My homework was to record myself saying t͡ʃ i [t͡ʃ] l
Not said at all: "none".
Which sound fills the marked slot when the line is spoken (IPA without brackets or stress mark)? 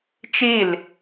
none